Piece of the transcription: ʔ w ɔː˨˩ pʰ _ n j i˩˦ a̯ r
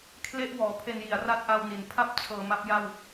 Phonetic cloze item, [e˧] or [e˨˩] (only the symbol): e˧